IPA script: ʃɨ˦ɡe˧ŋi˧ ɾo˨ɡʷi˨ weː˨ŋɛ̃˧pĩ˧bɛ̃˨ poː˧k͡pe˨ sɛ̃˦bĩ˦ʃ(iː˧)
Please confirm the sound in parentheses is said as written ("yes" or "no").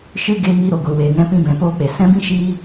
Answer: no